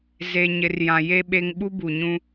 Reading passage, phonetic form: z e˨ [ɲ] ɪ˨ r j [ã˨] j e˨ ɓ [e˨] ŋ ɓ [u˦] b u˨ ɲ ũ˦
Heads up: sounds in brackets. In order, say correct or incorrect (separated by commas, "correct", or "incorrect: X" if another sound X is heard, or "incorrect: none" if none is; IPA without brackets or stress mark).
correct, correct, correct, correct